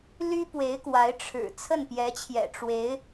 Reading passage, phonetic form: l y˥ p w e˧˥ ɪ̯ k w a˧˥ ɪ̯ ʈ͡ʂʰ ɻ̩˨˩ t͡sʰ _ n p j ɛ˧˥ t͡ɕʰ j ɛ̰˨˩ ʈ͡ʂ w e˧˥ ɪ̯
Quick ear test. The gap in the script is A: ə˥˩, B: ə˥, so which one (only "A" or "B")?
A